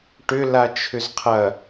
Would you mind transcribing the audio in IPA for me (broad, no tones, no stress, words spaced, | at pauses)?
ʈʏ lat͡ʃʰʏzqʰɐ